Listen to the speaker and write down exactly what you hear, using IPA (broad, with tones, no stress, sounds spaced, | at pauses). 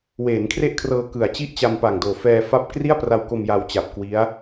w eː˩˦ n kʰ r e˥˩ ʔ kʰ r ɤː˧ k ɯ˨˩ a̯ t͡ɕ i˥˩ ʔ t͡ɕ a˧ m p a˨˩ ŋ d oː˨˩ f ɛː˧ f a˦˥ p̚ k r i˥˩ a̯ p r a˧ w k o˧ m j a˧ w t͡ɕ a˨˩ p̚ k w i˦˥ a̯